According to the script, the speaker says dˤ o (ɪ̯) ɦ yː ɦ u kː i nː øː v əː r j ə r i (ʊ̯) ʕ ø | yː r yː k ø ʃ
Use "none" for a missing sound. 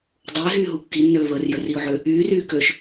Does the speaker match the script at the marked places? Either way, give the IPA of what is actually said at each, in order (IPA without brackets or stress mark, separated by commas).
ɪ̯, ʊ̯